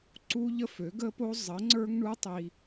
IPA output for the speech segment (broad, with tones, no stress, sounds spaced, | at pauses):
ǀ u˦ ʎ ə˦ f ø˨˦ ɡ ə˦ p o˦ zˤ ə˨˦ ŋ͡ǀ ə˞˦ ŋ ɳ u˦ tˤ i˦